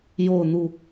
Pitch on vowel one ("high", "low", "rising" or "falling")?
falling